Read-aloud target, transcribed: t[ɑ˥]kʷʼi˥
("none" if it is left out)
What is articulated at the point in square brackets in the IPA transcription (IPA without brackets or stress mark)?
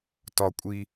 ɒ˥